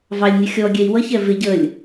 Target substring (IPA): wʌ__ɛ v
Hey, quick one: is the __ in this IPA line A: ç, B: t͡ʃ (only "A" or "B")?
A